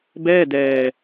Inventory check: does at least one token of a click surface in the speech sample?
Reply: no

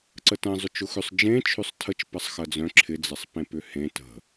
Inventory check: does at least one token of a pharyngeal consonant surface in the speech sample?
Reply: no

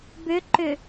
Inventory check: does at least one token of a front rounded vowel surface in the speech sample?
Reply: yes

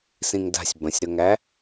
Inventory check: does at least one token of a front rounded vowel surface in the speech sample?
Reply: no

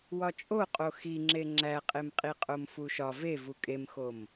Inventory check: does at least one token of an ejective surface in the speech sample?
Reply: yes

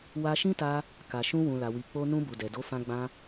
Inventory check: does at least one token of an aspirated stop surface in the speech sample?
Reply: no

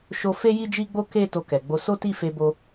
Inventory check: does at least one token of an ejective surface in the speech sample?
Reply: no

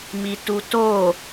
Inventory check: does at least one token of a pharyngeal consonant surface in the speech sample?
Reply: no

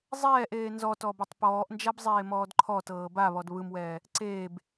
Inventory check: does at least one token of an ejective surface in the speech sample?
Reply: no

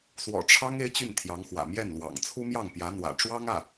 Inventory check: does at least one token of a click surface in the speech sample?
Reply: no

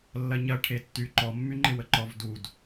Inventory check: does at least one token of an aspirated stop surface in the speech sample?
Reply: yes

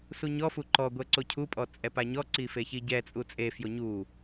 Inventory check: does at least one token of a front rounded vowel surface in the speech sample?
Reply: no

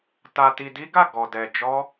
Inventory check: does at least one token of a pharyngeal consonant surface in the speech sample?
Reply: no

